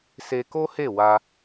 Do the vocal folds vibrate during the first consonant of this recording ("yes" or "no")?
no